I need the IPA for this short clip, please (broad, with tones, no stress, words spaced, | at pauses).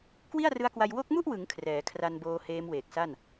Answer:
kwi˥˩a̯rɯ˦˥a̯kwa˧j wo˦˥k̚mu˥˩ʔwɯ˩˦ŋ kʰrɛː˩˦kʰra˧nboː˧ heː˦˥mweː˨˩k̚sa˥˩n